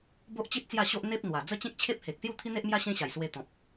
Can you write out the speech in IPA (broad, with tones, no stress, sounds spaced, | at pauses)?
b o˦ ʔ t͡ɕ i˦ t̚ t͡s j a˥˧ ɕ o˦ ʔ n̪ e˦ p̚ n̪ w a˨˩ d͡z ə˦ t͡ɕ ẽ˦ k̚ t͡ɕʰ e˦ p̚ h e˨ k̚ s j u˥˧ t̪ʰ i˦ n̪ e˦ ʔ m j a˦ ɕ ẽ˦ ɕ a˨˩ j s w e˧ t̪ ɔ̃˨ p̚